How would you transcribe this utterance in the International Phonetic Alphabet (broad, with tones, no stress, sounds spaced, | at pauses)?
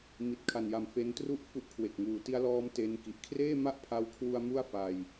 m i˨˩ t̚ kʰ a˨˩ n j a˨˩ m f e˦˥ n t r u˥˩ ʔ f u˦˥ ʔ kʰ w e˨˩ k̚ ŋ uː˨˩ t i˧ a̯ l ɔː˧ m t e˧ n k i˨˩ ʔ kʰ r eː˥˩ m a˥˩ ʔ pʰ a˧ w kʰ w u˧ a̯ m u˥˩ a̯ f a˧ j